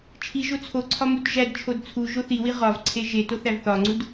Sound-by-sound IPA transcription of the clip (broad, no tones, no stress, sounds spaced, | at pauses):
t͡ʃʰ i ʒ o t͡sʰ o ǀʰ ɒ m u t ʒ æ d t͡ʃʰ o d t͡sʰ u ʒ o θ i w i ʁ ɒ v ǀʰ e ʒ e t o θ æ v θ ɒ ŋ͡ǀ u d